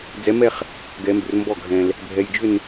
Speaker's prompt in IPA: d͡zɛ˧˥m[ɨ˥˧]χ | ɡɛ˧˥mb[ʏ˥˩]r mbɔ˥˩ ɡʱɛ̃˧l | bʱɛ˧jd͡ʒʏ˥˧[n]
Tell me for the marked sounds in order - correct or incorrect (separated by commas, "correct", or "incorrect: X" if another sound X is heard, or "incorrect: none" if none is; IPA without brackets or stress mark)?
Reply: incorrect: ɛ˥˧, incorrect: ʏ˧, correct